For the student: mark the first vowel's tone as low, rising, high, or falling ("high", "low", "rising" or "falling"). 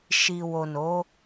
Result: low